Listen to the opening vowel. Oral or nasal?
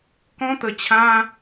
nasal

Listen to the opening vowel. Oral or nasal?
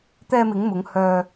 oral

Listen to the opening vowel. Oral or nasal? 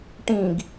nasal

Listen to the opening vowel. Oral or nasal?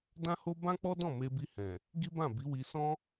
nasal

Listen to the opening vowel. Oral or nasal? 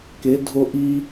oral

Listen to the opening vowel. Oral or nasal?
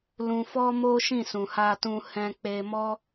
nasal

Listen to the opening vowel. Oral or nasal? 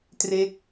oral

